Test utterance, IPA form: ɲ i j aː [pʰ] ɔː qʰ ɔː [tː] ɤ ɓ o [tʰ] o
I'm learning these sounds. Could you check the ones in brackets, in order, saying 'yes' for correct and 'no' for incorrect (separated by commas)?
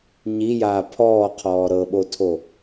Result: yes, no, yes